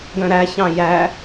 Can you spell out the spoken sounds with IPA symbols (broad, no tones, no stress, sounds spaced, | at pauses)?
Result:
ɡ œ̃ ɾ æ ç ɑ̃ j æ